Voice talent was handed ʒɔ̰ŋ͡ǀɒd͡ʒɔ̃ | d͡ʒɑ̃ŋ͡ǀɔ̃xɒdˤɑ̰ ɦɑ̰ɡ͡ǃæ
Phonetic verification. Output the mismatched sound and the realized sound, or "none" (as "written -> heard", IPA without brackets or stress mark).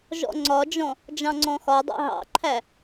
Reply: ɡ͡ǃ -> ǃʰ